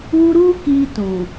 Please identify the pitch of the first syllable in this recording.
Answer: high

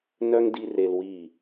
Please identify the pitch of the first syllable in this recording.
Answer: high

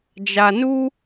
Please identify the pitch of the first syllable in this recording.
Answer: low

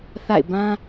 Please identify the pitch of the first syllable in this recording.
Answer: falling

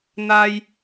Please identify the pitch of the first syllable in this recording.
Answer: high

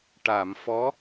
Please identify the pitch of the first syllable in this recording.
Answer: low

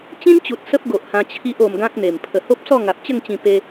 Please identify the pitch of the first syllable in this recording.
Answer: high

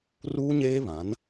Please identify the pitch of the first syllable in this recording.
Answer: high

